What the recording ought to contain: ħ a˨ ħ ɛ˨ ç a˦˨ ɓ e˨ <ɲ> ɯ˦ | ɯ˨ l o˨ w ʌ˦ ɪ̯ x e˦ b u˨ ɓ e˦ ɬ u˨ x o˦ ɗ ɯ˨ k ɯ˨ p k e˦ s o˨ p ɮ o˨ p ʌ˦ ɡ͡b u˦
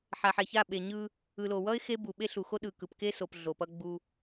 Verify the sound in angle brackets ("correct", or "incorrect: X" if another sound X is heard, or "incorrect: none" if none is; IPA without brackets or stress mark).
correct